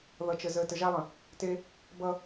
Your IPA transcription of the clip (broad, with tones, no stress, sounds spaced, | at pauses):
ð ʌ˨ t͡ʃ ə˨ z əː˨ t ə˨ ʒ a˦ lˠ ə̃˨ | t e˦ | b ʌ˦